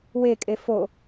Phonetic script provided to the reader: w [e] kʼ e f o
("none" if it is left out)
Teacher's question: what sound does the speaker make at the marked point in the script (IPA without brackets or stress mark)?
e